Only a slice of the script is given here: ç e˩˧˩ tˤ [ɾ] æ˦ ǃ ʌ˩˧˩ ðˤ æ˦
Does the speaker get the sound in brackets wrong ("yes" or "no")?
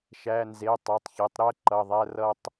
no